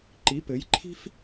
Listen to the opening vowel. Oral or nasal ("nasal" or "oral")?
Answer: oral